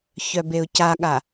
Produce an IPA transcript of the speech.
ç œ b e ʊ̯ c a ɠ a

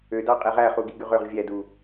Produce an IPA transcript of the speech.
ø d ɑ qʼ e ʁ æ χ u ɡ i ɡ y ʁ ø ʁ vʲ æ d u

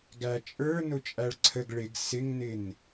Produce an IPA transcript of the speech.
ɡ æ t͡ʃʼ ə˞ n ʊ t͡ʃʼ æ ɭ ǀʰ ə ɡ ɭ ɪ ɡ s ɪ ŋ n ɪ n

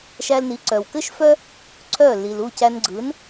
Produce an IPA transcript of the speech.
ʃ æ˧ l n i˩˥ ǀ œ˩ w k ɘ˥ ʃ f œ˥ | ǀʰ œ˥˩ l i˩ l u˥˩ c æ˧ n ɡ͡ǀ ɯ˩˥ n

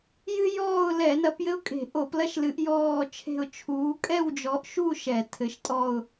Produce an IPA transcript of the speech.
j ɨ˥ j ɔː˥˧ ʊ̯ l ɛ˧˩˧ n ɐ˨˦ p j ɘ˥ ʊ̯ kʼ e̤˧˩˧ ʔ o˧˩˧ p l ɐ˥ ʃ l ɨ˨˦ ʔ j ɔː˥˧ t͡ʃʰ e̤˥˧ ʊ̯ t͡ʃʰ uː˨˦ kʼ ɛ˥˧ w d͡ʒ ɔ˨˦ ʔ ʃ u˥˧ ʃ ɛ˧˩˧ tʰ ɘ˨˦ ʃ tʼ ɔ˥˧ ʊ̯

